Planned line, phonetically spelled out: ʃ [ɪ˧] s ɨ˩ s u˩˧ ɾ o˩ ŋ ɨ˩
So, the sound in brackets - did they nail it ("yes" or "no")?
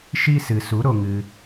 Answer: no